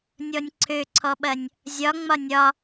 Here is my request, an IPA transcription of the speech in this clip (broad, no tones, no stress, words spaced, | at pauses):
nʲɔnʲǀʰøǀʰɔɓɐnʲ | zʲɒ ŋ͡mɒnʲɒ